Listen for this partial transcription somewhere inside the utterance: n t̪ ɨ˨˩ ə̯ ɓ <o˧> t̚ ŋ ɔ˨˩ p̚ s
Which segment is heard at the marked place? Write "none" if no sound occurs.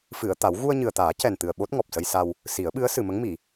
o˦˥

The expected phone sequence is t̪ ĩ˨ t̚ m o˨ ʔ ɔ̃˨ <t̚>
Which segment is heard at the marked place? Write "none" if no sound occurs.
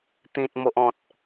t̚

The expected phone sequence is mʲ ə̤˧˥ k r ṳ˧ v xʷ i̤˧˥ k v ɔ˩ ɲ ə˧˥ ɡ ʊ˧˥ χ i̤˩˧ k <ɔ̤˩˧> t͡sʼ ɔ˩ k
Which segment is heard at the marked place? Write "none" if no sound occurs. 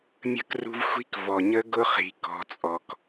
ɔ̤˩˧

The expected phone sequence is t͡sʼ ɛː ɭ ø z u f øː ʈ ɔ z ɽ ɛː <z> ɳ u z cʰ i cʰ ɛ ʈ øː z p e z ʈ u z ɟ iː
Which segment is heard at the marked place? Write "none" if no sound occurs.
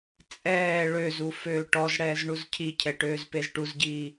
z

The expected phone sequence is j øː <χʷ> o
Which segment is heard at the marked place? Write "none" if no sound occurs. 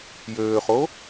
χ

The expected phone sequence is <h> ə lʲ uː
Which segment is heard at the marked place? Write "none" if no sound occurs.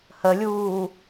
h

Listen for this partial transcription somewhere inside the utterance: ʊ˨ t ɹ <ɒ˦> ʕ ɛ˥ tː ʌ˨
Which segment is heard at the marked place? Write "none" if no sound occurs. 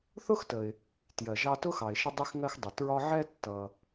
ɒ˦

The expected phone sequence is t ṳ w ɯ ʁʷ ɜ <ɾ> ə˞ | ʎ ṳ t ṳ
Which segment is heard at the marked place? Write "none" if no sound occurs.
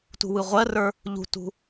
r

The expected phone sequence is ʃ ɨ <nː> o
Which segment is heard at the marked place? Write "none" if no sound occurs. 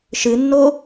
nː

